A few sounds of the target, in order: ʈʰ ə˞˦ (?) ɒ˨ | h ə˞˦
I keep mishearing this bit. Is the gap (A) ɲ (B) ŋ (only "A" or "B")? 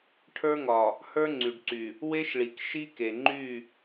B